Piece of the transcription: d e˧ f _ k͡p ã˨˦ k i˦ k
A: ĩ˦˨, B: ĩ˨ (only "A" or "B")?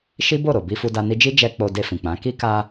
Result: B